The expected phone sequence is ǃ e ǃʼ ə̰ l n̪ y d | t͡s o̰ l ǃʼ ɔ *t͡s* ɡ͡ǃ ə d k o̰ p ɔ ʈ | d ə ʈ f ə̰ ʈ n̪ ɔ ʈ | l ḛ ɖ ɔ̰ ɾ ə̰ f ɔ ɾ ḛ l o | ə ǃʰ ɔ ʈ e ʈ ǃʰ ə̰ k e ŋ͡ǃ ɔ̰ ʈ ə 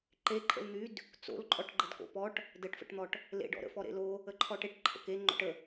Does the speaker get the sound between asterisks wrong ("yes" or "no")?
yes